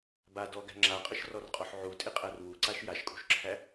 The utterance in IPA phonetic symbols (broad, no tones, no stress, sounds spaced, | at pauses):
b a d ɔ ɡ æ̤ ŋ͡ǁ a qʼ ə ʃ r ɔ r qʼ ɔ ħ ʕ u tʼ ɪ qʼ æ r w u ǀ a ʃ j a ʃ kʼ ṳ ʃ ǁʰ æ